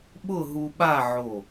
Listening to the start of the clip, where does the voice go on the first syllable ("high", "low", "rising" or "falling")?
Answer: falling